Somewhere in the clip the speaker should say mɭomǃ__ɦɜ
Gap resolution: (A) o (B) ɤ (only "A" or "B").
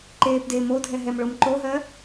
A